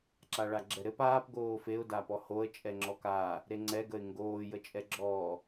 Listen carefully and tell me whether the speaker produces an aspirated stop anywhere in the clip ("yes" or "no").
no